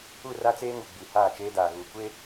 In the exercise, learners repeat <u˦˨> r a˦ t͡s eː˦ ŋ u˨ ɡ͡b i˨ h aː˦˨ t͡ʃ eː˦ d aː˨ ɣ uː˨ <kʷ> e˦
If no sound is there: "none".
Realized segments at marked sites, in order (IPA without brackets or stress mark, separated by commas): u˦˨, kʷ